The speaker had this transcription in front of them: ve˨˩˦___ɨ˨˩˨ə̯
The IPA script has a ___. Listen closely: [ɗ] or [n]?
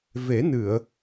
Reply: n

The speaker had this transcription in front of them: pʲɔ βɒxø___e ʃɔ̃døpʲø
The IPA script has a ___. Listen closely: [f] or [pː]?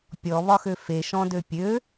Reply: f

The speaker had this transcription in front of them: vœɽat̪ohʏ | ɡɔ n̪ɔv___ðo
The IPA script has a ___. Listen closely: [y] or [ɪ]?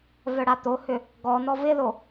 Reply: ɪ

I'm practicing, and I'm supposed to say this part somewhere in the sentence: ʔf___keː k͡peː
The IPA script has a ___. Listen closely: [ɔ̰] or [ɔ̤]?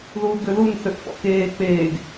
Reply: ɔ̰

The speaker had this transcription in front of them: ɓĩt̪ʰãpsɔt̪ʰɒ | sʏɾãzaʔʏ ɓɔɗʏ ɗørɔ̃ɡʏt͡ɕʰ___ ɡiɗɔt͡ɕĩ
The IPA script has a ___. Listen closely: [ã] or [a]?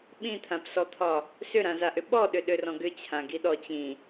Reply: ã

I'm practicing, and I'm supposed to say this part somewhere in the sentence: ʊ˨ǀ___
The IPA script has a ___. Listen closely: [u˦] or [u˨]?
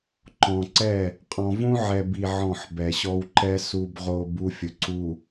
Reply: u˨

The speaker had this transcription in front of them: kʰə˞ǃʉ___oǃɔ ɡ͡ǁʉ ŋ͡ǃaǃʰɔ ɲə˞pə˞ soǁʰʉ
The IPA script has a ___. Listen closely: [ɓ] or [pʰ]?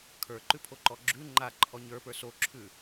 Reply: pʰ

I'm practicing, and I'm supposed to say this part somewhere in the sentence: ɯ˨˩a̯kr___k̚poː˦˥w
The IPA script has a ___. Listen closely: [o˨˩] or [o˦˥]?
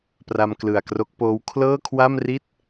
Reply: o˦˥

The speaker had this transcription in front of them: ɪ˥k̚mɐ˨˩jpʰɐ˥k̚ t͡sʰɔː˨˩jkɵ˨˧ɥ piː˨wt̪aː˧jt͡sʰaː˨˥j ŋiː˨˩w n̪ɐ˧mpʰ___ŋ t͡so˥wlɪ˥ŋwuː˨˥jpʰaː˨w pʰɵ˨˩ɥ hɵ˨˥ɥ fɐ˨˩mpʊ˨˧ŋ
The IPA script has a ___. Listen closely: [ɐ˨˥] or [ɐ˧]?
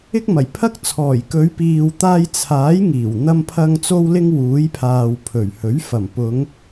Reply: ɐ˧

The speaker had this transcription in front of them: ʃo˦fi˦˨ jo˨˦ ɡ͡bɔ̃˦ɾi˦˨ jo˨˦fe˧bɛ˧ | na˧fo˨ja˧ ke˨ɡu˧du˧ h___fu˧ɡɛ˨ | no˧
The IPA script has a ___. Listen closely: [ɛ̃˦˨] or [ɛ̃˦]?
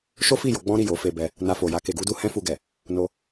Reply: ɛ̃˦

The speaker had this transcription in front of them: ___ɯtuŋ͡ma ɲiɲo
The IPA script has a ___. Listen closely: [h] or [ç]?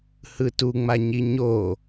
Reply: h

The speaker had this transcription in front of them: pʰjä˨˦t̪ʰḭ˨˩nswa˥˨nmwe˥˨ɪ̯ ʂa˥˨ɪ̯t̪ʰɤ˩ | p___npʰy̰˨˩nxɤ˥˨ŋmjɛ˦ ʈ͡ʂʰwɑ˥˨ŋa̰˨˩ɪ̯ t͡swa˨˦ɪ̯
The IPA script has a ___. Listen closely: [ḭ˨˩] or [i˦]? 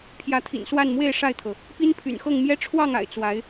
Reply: i˦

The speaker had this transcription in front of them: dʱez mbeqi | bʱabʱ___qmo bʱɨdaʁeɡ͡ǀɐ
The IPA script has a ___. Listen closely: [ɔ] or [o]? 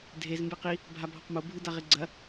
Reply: ɔ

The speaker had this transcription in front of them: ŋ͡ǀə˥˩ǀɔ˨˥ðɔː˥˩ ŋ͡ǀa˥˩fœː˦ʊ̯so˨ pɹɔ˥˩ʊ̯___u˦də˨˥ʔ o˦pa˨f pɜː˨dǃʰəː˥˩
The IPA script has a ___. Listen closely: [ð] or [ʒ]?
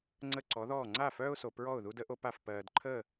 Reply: ð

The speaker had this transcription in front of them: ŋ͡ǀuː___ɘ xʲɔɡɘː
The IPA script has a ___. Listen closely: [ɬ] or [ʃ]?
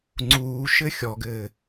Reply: ʃ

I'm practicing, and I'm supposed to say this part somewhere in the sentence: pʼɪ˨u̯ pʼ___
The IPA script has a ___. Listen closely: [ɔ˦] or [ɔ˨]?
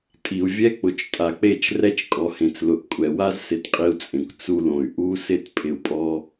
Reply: ɔ˦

